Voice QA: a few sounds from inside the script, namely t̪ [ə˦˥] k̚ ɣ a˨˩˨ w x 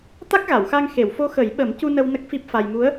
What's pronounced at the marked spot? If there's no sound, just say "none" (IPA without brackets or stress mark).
a˦˥